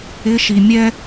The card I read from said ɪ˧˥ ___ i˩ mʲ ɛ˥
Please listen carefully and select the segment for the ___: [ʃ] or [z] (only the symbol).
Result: ʃ